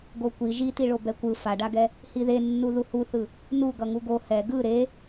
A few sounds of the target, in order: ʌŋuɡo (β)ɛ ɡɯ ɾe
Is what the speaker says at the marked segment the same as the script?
no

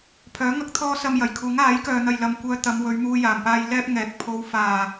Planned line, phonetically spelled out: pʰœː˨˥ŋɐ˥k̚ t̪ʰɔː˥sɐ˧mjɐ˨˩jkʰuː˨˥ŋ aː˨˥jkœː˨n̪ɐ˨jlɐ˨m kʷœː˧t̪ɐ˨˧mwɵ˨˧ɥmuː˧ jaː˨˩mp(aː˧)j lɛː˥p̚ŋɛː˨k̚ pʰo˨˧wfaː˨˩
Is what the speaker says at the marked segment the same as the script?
yes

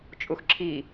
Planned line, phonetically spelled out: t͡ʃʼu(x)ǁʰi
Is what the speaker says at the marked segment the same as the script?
yes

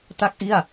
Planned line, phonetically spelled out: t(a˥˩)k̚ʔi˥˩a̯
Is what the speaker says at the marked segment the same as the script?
yes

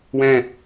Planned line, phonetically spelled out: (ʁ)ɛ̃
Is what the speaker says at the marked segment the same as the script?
no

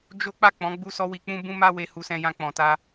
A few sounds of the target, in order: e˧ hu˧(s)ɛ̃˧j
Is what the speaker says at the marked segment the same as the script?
yes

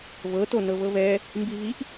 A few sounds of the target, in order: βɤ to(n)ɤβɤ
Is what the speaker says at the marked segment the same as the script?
yes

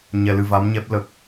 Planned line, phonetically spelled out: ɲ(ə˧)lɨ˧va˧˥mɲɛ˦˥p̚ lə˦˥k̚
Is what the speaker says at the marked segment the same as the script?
no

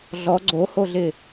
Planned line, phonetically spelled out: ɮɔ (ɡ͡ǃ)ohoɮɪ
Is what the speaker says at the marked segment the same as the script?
no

